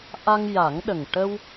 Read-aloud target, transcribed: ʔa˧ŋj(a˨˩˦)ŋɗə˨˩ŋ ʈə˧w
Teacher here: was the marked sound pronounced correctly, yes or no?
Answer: yes